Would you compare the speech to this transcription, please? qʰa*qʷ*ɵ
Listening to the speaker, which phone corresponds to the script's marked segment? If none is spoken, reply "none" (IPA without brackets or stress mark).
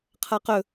q